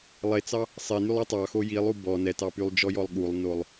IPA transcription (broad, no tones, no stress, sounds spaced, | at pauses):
lˠ e t͡s ɑ | sˤ e n y lˠ i tˤ ɑ x o j i lˠ u b ɔ n ɛ t ɑ p y lˠ d͡ʒ ɔ j ɔ lˠ ɠ u lˠ n o lˠ